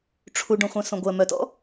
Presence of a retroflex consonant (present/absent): present